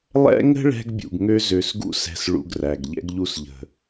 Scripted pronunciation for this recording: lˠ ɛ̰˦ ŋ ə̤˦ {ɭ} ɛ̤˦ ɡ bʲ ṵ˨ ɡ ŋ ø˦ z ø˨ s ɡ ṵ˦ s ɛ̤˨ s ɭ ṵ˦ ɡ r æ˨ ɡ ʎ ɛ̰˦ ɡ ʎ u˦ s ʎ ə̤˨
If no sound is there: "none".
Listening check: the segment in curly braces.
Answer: ɭ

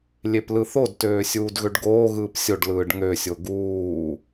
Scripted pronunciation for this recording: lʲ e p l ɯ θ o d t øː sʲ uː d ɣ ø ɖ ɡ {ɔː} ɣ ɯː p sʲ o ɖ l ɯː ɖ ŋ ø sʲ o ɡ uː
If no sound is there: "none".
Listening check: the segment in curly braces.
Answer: oː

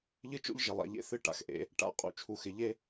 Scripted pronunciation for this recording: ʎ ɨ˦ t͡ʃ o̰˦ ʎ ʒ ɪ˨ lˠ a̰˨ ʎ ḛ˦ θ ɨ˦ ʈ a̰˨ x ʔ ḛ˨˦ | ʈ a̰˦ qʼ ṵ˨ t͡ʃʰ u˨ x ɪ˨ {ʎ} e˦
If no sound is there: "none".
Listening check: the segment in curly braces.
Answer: ʎ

